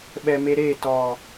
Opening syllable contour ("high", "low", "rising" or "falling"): low